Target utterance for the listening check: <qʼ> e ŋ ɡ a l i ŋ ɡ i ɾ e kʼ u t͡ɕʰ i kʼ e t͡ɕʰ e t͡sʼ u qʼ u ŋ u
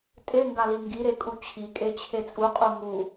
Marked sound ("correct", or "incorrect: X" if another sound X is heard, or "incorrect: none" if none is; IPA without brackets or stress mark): incorrect: tʼ